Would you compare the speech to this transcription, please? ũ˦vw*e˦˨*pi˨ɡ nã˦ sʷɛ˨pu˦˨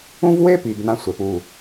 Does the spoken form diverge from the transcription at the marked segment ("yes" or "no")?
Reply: yes